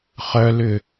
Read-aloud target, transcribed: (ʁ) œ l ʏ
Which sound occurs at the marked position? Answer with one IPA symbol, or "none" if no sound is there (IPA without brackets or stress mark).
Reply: χ